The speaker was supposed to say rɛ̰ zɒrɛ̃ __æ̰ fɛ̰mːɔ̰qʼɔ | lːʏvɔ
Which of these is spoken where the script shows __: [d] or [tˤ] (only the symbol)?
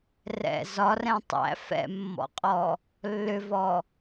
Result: tˤ